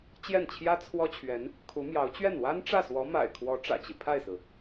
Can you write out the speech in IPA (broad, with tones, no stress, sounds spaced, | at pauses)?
t͡ɕ j ɛ˥˩ n t͡ɕʰ j ä˥ t͡sʰ w ɔ˥ t͡ɕʰ ɥ ɛ˧˥ n | kʰ u˧˥ m j ɑ˧˥ ʊ̯ t͡ɕ ɥ ɛ˥˩ n w a˥ n ʈ͡ʂ ä˥˩ s w ɔ˧˥ m a̰˨˩ ɪ̯ kʰ w ɔ˧˥ ʈ͡ʂ ä̰˨˩ t͡ɕ i˦ pʰ a˥˩ ɪ̯ s ɹ̩˩